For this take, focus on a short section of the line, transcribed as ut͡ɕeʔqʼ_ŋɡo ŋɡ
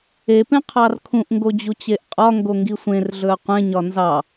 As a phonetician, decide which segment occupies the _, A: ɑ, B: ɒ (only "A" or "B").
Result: B